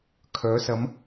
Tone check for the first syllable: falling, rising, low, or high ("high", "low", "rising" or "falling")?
rising